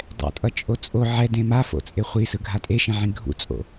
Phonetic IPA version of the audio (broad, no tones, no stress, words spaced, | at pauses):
dˤɛ̰tʼʌ t͡ʃʼot͡sʼo ʕɛdẽ mafo̰ t͡sʼeχʷisɯ ɡʱatʼeʃẽʕĩ ɡʱṵt͡sʼo̰